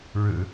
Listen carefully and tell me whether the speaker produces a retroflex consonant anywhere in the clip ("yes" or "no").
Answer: yes